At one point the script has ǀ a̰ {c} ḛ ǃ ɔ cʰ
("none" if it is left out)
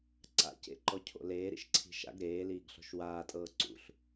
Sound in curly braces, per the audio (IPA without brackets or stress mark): c